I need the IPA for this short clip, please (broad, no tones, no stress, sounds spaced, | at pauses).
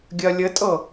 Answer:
ɡʲ ɜ lʲ ɘ tʼ ɤ